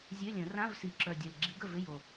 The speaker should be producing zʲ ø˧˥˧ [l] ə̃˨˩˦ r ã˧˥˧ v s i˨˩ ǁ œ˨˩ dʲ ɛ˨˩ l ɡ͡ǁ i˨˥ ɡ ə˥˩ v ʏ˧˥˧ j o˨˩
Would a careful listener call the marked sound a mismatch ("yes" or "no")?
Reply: yes